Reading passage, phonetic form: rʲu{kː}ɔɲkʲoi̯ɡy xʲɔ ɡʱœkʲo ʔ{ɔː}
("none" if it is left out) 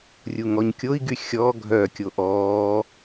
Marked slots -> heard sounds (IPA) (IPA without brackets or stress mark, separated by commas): ŋ, ɔː